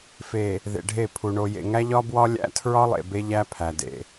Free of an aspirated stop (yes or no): no